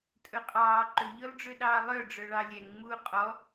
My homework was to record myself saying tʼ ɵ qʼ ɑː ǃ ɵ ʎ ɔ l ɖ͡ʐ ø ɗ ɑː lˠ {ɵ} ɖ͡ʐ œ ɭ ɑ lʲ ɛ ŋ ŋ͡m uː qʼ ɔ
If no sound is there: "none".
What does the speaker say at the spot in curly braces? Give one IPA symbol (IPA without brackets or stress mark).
œ